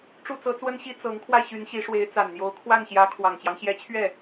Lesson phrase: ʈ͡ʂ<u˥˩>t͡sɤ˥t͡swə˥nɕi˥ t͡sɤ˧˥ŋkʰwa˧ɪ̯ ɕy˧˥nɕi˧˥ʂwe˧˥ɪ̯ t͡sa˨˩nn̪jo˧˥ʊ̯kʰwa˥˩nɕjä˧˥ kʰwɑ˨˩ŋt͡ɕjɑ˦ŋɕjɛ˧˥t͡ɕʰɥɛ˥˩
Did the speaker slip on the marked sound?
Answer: no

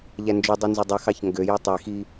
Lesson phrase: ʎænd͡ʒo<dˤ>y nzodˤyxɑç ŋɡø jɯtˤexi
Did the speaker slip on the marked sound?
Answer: no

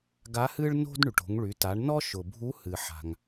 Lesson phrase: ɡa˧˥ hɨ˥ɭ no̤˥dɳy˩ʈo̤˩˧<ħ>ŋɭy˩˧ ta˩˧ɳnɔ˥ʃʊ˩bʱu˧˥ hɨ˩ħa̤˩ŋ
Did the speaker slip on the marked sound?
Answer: yes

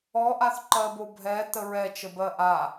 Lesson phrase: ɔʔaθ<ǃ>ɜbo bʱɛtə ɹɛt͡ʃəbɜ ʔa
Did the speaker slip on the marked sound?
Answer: no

